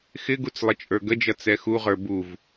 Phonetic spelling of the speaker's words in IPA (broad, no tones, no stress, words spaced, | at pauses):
xɪɡut͡s lˠɪt͡ʃʼə˞ɡəd͡ʒʌ t͡sɛxuʁə˞ buv